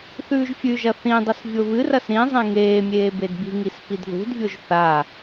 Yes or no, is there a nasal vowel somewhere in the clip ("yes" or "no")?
yes